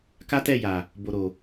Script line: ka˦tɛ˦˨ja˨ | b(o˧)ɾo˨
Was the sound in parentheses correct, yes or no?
no